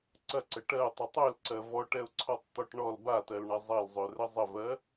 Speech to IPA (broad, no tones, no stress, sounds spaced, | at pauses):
ǀ ɐ ǀ ə ʈ ɜ ʊ̯ tˤ ø tˤ ø l ǀ ɜ v ɔ ʈ ɛ ʊ̯ ǀʰ ɔ tˤ t̪ ɔ ʈ ɳ ɔ l b a t ɜ l ɳ ɐ zˤ ɐ l zˤ ø r ə zˤ ə v ɜ